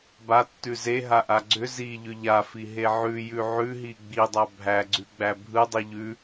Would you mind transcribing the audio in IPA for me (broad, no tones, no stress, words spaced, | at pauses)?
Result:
batːʉ zeɦaʔa ɡ͡ǀʏ ziʎʏ ʎafiɦe ʕʉjʉ ʕʉɦi ɡ͡bidˤa bʱæɡ͡ǀʉɡ͡bæ bʱɯdˤi ʎʉ